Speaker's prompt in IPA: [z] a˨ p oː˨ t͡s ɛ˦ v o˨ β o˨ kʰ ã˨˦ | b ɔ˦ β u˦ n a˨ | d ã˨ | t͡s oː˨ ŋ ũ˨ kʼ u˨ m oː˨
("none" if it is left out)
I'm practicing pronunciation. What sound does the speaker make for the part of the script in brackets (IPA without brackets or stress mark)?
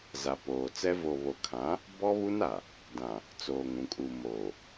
z